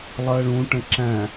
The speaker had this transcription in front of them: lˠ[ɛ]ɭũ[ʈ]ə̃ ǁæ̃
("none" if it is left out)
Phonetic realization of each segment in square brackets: ɜ, ʈ

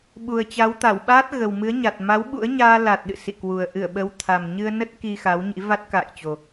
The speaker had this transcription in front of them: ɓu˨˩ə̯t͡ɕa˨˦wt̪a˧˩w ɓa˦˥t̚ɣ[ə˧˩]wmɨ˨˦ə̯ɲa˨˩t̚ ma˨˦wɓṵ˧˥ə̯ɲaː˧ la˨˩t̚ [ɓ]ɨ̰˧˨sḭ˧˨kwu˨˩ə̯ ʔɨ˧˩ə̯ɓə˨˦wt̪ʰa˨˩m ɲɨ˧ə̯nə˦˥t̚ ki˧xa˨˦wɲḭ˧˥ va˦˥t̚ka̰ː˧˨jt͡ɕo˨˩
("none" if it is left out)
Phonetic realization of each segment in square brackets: ə˨˩, ɗ

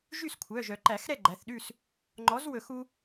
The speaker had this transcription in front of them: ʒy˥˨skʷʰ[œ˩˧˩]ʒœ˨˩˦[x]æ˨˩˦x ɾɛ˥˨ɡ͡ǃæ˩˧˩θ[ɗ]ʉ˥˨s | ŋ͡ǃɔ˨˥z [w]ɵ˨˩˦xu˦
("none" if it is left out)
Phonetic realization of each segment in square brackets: œ˩˧˩, ǃ, ɗ, w

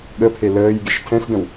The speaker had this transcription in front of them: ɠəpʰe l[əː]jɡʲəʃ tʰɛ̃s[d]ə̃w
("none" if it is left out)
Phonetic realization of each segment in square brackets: əː, d

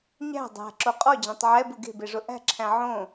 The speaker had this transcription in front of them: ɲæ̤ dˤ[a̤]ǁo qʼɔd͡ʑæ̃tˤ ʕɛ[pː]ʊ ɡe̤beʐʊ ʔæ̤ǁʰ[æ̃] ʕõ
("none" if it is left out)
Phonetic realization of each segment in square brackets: æ̤, b, æ̃

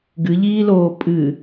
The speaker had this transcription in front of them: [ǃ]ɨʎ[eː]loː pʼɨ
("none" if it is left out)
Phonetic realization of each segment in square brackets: ɡ, iː

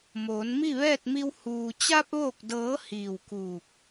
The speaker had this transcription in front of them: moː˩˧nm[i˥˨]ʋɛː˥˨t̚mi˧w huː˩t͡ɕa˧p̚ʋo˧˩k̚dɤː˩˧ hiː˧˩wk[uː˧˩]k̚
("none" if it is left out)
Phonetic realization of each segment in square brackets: i˥˨, uː˧˩

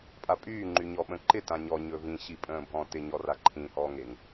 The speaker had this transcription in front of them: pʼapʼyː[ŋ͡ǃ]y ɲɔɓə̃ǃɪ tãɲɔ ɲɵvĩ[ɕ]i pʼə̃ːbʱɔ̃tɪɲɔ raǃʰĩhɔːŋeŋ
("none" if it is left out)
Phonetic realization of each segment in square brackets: ŋ͡ǃ, ɕ

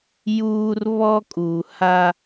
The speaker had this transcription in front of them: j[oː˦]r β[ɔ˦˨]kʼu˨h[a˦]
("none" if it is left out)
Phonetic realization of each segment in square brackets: uː˦, ɔ˦, a˦

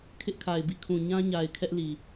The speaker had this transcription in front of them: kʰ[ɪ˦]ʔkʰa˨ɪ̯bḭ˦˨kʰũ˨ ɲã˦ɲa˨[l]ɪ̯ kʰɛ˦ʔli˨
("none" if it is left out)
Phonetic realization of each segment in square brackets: ɪ˦, none

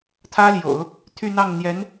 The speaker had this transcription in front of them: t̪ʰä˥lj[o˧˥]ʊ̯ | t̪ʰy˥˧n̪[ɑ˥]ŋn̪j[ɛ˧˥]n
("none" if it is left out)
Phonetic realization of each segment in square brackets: o̰˨˩˦, ɑ˥˩, ɛ˧˥

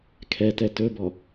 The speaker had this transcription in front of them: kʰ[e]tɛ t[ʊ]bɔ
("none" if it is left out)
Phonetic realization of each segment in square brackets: ɛ, ɵ

